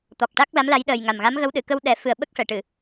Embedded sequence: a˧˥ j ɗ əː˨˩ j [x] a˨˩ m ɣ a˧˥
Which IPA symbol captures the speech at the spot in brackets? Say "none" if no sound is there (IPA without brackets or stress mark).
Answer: ŋ